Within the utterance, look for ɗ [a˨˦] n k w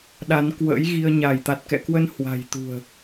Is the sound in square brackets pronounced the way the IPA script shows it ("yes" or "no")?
yes